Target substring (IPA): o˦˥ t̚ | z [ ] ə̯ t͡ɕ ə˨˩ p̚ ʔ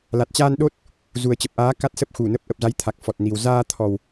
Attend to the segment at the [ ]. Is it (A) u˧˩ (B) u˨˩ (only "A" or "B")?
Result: B